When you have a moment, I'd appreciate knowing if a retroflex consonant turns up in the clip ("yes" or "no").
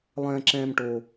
yes